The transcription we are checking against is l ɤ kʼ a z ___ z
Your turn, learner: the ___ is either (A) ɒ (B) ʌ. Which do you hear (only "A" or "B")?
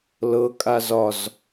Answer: A